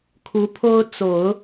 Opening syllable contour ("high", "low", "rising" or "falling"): rising